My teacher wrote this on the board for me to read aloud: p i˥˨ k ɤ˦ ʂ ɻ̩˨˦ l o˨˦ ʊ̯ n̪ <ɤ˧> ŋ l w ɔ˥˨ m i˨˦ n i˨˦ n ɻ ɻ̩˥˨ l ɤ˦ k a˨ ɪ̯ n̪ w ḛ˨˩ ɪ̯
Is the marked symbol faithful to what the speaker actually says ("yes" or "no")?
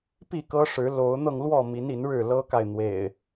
yes